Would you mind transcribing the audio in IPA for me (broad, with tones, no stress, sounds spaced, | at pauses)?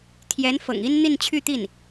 t̪ʰ j ɛ˧˥ n f ɤ̰˨˩ ŋ i˥ n n̪ i˥˧ n t͡ɕʰ y˥˧ t̪ i˥˩ n